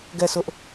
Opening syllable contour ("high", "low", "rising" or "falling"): falling